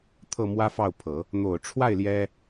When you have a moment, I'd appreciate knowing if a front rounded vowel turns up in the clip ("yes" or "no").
no